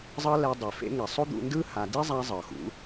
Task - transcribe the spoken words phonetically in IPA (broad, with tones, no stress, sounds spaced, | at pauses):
zˤ ɤ˦ l ɛ˧ dˤ e˨ f ḛ˧ ŋ ɛ˨ sˤ o˦ d̪ ṵ˧ n d ɯ˦ h a˧ d i˦ zˤ a˧ zˤ ɤ˨ x ṵ˨˦